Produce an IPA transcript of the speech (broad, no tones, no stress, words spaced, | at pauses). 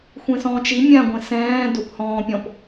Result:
xʷẽsɔ̃ːt͡ʃi mʲã ɡʷẽsɛ̃ː dophɔ̃ːpʲɔ̃p